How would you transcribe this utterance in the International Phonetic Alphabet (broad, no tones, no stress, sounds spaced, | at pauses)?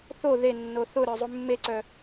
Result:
θ o ð e nː o θ ʊ ɾ œ zˤ u mː e ǀ œ